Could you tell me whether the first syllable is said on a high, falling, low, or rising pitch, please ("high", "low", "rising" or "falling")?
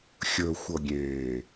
low